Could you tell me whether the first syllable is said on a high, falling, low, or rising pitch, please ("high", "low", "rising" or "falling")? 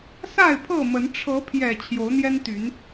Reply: falling